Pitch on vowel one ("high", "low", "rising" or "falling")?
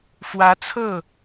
rising